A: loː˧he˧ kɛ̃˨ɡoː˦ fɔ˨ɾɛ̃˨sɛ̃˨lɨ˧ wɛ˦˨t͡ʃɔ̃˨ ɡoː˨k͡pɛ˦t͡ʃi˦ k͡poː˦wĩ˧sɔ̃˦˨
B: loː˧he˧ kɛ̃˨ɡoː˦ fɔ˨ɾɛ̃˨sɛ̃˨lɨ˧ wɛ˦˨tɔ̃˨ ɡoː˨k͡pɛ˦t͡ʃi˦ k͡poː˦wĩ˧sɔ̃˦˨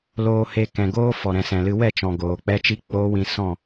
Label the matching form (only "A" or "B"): A